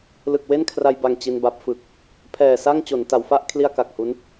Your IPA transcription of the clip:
l ɯ˨˩ k̚ w e˥˩ n kʰ r a˧ j b a˨˩ ŋ t͡ɕ i˧ n b a˦˥ p̚ f ɯ˨˩ k̚ | pʰ ɛː˨˩ s a˥˩ ŋ t͡ɕ o˩˦ n t a˩˦ w f a˥˩ ʔ kʰ l i˥˩ a̯ k a˨˩ k̚ h u˦˥ n

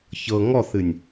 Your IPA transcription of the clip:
ç ɤ ŋ ɔ θ ɨ nʲ

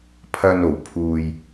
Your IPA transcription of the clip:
pʰ ɐ˧ n o˨ w pʰ uː˧ j

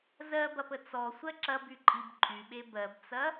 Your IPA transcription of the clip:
z ɜ b ɐ p ə t͡s ɔ sʷ ɜ ǁ ɐ b y ǃʼ i b ǃʼ y ɓ e b ɜ b t͡s ɐ

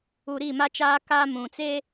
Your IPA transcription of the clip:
u˨ ɾ iː˦˨ m a˦ t͡ʃ aː˦ k aː˦ m ũ˨ t͡s eː˦

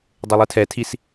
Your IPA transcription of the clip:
dˤ e lˠ ɯ tʰ ɛ tʰ i s

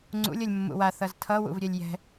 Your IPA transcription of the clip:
ŋ͡ǀ ṵ lʲ ʌ lʲ mː ṵ w a θ ʌ z tʰ ʌ w ṵ v ɾʲ ɛ lʲ j ɛ̤

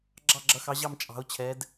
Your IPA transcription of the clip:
ɡ͡ǁ ɑ˧˩ ɡ͡ǁ ʌ˩˧ x ɑ˩˧ ʑ ɑ˧˩ m t͡ʃʼ ɑ̤˩˧ ʊ̯ t͡ɕʰ ɛ˩˧ d

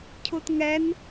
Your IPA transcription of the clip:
cʰ u t ŋ ɛ n

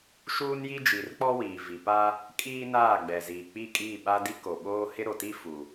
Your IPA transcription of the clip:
ʃ uː˦ n j i˦ d͡ʒ i˨ r k͡p ɔ˦ w iː˨ v i˨ p a˦ | kʼ iː˦ n aː˦˨ ɡ͡b ɛ˨ z iː˨ k͡p i˦˨ kʼ iː˦˨ ɓ a˦ d i˦ k o˨ ɓ oː˦ h ɪ˦ ɾ o˨ t i˦ f u˨

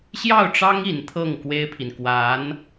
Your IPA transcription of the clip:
ɕ j ɑ˥˩ ʊ̯ ʈ͡ʂ ɑ˥ ŋ i˧˥ n t̪ʰ ɤ˥˩ ŋ k w e˥ ɪ̯ pʰ i˨ n k w a˧˥ n

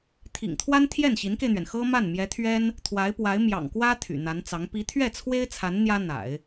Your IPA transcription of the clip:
t̪ʰ ḭ˨˩ ŋ t̪ʰ w a˥ n t̪ʰ j ɛ˥˩ n ɕ i˧˥ n k e˧ ɪ̯ n̪ ɥ ɛ˩ n x ɤ˥ m a˥˩ n m j ɛ˧˥ t̪ʰ ɥ ɛ˥ n | t̪ʰ w a˧˥ ɪ̯ p w a˧˥ ɪ̯ m j ɑ̰˨˩ ŋ k w ä˥ t̪ʰ y̰˨˩ n̪ a˧˥ n t͡s ɑ˧˥ ŋ p i˧˥ t̪ʰ ɥ ɛ˥˩ t͡sʰ w e˥ ɪ̯ t͡sʰ a˧˥ n n̪ j ä˥ n̪ a̰˨˩˦ ɪ̯

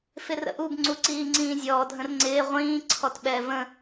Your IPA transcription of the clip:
f ɪ r ə̰ ʔ u b ŋ͡ǀ u ǀ iː ŋ͡ǀ ĩː zʲ ɔː dʱ ə̃ r ŋ͡ǀ ɪː ʁʷ ĩː ǀʰ ɔ t ɓ ɛ v ə̃

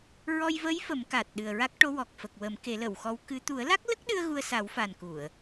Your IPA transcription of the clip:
ɹ ɔ˧ j v ə˧˥ j f ə˨˩˦ m k a˨˩ t̚ ɗ ɨ˨˩ ə̯ ɹ a˦˥ k̚ ʈ o˧˥ w ɔ˨˩ k̚ f ə˨˩ k̚ w ə˨˩˦ m k e˨˩˦ l ə˨˩˨ w x ɔ˧˥ w k ɨ˧˥ t̪ u˨˩˦ ə̯ l a˦˥ k̚ l ə˦˥ k̚ ɗ ɨ˧ ə̯ ɣ u˧ ə̯ s a˨˩˦ w f a˨˩ n k u˨˩˨ ə̯

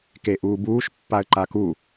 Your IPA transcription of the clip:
k e ʔ uː b uː ʃ pː a ə̯ ǃ a k u

